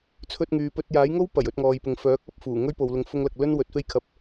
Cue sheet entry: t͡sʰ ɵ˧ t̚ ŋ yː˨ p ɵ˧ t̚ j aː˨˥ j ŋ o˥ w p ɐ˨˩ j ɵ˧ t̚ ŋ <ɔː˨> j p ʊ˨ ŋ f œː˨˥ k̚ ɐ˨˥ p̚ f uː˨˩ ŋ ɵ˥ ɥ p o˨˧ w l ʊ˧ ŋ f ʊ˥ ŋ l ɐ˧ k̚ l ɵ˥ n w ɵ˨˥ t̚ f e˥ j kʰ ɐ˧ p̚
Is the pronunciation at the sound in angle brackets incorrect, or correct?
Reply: correct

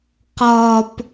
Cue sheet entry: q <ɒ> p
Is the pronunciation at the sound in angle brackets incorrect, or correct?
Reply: correct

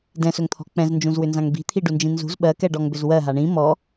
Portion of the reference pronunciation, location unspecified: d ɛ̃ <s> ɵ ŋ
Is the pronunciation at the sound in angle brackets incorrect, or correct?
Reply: correct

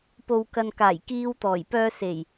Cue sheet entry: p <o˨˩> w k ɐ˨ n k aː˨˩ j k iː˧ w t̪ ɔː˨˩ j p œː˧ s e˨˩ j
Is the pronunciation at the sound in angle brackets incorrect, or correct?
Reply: incorrect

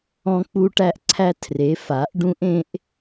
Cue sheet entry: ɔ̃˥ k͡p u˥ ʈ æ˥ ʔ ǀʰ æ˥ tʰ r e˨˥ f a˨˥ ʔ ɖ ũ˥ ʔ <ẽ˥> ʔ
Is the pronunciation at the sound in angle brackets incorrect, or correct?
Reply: correct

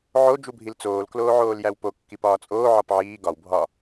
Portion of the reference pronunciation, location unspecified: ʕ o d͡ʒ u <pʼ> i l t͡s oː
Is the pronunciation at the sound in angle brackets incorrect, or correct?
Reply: incorrect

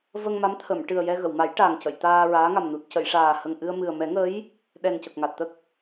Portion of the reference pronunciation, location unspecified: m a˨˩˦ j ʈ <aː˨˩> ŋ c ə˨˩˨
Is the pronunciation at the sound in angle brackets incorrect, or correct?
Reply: correct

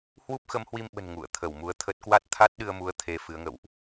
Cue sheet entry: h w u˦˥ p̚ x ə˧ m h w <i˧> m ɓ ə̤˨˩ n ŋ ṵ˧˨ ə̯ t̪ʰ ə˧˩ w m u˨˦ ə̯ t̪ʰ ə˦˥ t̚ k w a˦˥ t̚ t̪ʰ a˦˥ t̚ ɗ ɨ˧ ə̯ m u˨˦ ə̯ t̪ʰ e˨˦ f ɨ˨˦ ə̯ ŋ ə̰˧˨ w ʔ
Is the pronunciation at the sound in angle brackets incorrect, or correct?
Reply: correct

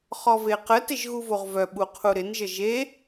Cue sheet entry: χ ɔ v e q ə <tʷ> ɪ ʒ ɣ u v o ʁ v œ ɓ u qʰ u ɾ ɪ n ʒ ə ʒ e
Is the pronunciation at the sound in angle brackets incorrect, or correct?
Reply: incorrect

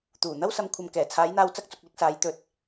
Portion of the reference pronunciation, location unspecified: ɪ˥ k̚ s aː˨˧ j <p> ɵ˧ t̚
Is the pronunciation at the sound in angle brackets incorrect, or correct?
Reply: incorrect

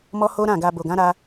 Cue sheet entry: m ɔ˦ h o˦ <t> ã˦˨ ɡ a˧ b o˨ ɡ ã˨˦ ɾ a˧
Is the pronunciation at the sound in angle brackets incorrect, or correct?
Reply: incorrect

